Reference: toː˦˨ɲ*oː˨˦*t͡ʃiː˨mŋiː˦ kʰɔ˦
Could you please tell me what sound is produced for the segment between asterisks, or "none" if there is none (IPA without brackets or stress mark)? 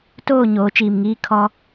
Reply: oː˨˦